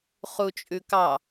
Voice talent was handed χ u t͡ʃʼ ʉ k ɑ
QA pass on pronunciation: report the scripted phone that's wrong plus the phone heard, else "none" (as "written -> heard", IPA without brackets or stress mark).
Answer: none